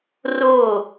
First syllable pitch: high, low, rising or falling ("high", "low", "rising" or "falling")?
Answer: falling